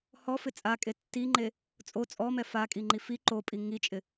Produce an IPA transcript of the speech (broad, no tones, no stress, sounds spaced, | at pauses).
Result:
h ɔ f ɪ t͡sʼ a kʼ e tː i ŋ͡ǃ e | t͡sʼ o t͡sʼ ɔ m ɛ f a kʼ i ŋ͡ǃ i f i ǃ o pʼ i ŋ i t͡ʃʼ ɪ